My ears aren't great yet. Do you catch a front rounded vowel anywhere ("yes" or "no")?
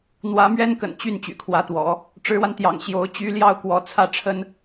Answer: yes